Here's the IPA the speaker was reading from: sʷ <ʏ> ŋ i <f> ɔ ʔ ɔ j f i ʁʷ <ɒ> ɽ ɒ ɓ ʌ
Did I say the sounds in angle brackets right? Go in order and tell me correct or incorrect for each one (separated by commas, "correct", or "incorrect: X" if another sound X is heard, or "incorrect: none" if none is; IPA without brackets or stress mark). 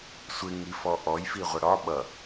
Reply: incorrect: ɪ, correct, incorrect: ʌ